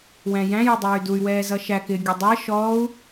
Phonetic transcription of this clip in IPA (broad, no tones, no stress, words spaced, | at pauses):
wæ̃jæ̃ jɪdˤʌːy̯duy̯ wɛːzʌʃæk ɪ ɡʲʌdˤɜ ʃɔːu̯